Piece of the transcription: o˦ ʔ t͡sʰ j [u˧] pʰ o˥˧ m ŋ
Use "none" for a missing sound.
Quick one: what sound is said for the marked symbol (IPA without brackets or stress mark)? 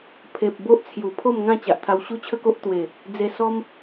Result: u˨˩